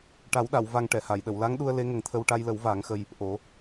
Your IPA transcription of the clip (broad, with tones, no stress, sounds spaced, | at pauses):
ʈ a˨˩˦ w ɗ a˨˩˨ w v a˧ ŋ ʈ ɛ˨˩˨ h a˨˩˨ j ɗ ə˨˩˨ w l a˧˥ ŋ ɗ u˧ ə̯ l e˧˥ ŋ ə˨˩ ŋ t̪ʰ ə˧ w ʈ a˧ j l ə˨˩˦ w v aː˨˩˦ ŋ x ə˧ j | ʔ o˨˩˦